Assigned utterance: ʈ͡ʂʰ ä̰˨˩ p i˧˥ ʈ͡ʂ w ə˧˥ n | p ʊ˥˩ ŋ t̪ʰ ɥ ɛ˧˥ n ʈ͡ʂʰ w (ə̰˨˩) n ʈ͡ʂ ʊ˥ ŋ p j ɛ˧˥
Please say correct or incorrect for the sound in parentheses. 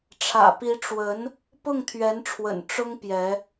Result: correct